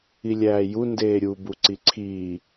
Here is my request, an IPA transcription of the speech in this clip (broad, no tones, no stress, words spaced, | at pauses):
ilʲæːju ndeːɾʲu buǀiǀʰiː